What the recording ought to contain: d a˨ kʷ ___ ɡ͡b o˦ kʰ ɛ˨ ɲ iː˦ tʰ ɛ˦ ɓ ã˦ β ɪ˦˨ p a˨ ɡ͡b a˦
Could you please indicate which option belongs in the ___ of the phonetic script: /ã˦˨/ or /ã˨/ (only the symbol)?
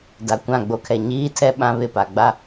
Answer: ã˦˨